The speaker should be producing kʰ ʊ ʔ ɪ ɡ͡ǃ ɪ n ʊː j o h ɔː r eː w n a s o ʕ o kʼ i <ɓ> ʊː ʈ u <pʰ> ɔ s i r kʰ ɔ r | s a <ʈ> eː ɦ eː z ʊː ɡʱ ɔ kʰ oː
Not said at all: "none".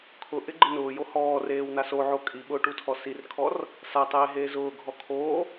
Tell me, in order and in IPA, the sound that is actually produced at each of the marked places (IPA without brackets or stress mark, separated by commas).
ɓ, tʰ, tˤ